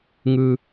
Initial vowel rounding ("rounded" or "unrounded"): unrounded